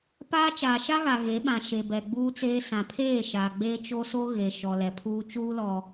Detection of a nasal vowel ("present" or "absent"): present